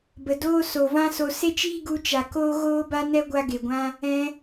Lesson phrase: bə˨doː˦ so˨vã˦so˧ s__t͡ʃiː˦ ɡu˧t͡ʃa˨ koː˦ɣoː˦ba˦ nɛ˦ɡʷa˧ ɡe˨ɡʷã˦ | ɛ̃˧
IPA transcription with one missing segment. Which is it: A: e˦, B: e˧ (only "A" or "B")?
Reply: A